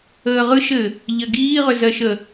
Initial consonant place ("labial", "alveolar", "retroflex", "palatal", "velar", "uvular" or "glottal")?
uvular